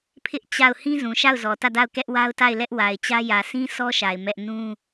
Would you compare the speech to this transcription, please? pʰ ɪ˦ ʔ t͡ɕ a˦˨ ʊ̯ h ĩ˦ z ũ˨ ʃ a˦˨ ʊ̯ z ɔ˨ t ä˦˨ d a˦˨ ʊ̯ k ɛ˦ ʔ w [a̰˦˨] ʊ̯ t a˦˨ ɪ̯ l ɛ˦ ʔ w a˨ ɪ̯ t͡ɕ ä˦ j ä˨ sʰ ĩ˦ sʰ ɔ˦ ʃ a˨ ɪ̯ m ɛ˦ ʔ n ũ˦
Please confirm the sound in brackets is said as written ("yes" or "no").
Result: no